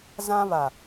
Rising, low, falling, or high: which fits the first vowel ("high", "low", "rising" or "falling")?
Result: high